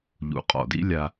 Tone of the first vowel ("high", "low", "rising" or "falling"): low